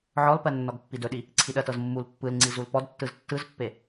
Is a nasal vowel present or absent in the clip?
absent